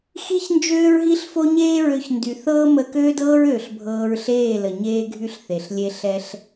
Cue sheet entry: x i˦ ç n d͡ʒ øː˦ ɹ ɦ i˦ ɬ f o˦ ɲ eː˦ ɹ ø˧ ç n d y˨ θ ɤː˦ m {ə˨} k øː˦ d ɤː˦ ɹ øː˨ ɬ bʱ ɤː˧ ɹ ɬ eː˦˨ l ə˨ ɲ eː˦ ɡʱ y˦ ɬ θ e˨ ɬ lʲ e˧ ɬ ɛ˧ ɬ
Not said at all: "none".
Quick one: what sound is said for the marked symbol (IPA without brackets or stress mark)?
ə˧